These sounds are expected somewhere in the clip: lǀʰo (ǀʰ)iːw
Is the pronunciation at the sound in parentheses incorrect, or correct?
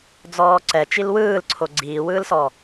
incorrect